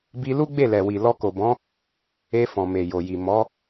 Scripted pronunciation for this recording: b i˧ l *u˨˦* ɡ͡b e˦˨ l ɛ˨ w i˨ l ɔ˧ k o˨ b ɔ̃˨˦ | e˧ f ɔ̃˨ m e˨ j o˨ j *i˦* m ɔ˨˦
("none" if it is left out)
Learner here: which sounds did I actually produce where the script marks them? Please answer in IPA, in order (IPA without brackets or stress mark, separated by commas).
u˦, i˨